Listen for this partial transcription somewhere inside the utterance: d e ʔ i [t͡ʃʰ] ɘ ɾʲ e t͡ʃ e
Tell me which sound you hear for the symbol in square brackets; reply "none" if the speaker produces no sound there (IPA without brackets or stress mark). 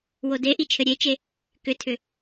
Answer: t͡ʃʰ